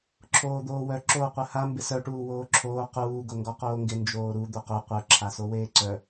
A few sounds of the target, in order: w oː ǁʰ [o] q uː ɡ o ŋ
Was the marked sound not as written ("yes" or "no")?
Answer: yes